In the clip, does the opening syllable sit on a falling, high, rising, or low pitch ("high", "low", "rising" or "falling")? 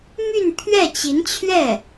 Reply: falling